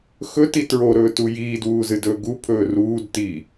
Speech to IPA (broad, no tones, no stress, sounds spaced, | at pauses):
x ɵ t i t ɹ o ɾ ɵː t u j iː d w uː z ɨ d ɵː ɡ u pʰ ɵː r uː d t i